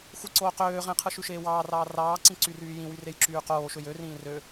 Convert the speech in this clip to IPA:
xʷ i ǀ oː q øː ʁ ẽ qʰ ɯ ʃ y ʃ eː w ɑː r ɑː r ɑː ǀ ĩ ǀ y r yː j ĩ w y r e j ǁ yː q oː ʃ ø j ø r ĩː r ø

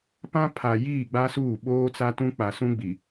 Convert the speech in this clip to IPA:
p ã˦ pʰ a˨ j iː˦˨ ɡ͡b a˦ s uː˦˨ ɓ oː˦ t͡s a˦ t ũ˦ k͡p a˨ s ũ˦ ɡ͡b i˨

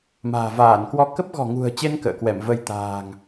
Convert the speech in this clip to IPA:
m a̤ː˨˩ v aː˧˩ n k w ɔ˧ k ə˦˥ p̚ ɣ ɔ̤˨˩ ŋ ṳ˨˩ ə̯ t͡ɕ e˧ n k ə̰ː˧˨ k w ɛ˧˩ m v ə˧ j t̪ a̤ː˨˩ ŋ

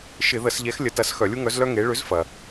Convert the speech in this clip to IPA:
ʃ ɪ˧˩˧ ð ə˧˩˧ s ʎ ɛ˨˥ x lʲ ə˨˥ t ɐ˨˥ s x œ˧˩˧ lʲ u˥ ŋ œ˨˥ z l œ˥ ŋ e˨˥ ɭ ʏ˨˥ z f ɐ˩

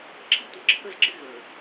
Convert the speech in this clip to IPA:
ǁ i˦ tʷ ə˨ ǁʰ ə˦ z ɡ͡ǁ ɪ˦ ɣ ə˞˨

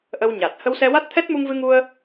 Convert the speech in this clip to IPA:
ʔ ə˧ w ɲ a˨˩ t̚ h ə˧ w s ɛ˧ w a˦˥ t̚ t̪ʰ ɛ˦˥ t̚ m u˧ ŋ v ɨ˧ ŋ u˧ ə̯

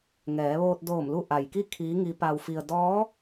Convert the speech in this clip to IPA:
ŋ ɛː˩˧ ʋ oː˧ t̚ d oː˧˩ m l u˧ ʔ a˩ j k i˥˨ kʰ iː˧˥ ŋ i˧˥ p a˧ w f i˧ ə̯ d ɔː˧˥

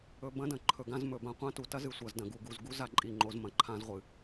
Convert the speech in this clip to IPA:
ɵ˧ b ɐ̃˦ d ɐ̃˨ ǃʰ ɵ˨ ɡ ã˧ z m ɵ˨ b ã˧ qʷ ã˦ t u˨ t ɐ˦ z ɨ˨ sʷ ɐ˨ z d ɐ̃˨ ɡ u˨ ɡ u˨ z ɡ u˦ z a˧ ǃʼ i˨ ŋ͡ǃ o˨ z m ɐ̃˨ ǃʰ ã˧ z ʁʷ ɨ˨

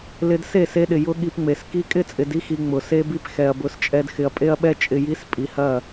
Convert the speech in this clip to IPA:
l ɪ˧ d s e˦˨ s e˧ ɗ ɪ˨ j ʊ˦ ɠ i˧ p ŋ͡m e˨ s k i˧ kʼ ɪ˦˨ t͡sʼ ɪ˨ d i˦ x i˨ ŋ͡m ʊ˨ s e˦ b i˦ p x ɛ˨ ɐ̯ b ʊ˨˦ s t͡ʃʼ ɛ˧ d x ɪ˨ ɐ̯ pʼ e˧ ɐ̯ ɓ ɛ˧ t͡ʃʼ ɪ˨ j i˨˦ s pʼ i˨ h ɐ˦˨

